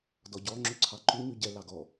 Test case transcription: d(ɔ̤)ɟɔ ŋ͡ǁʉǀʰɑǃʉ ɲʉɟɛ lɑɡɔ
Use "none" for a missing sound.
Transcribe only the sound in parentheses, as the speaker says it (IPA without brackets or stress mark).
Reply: ɔ